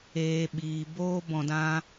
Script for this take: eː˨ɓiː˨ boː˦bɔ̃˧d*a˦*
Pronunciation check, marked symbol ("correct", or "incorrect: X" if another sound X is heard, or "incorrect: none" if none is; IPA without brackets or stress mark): incorrect: ã˦